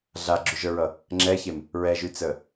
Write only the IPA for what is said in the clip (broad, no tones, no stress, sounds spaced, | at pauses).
ɮ a ɡ͡ǁ y ʒ ə˞ ɹ ʌ | ŋ͡ǁ ɛ ç e m | ɹ ɛ ʒ y t͡s əː